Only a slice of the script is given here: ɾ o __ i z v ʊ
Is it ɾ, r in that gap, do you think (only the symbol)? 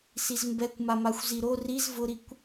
r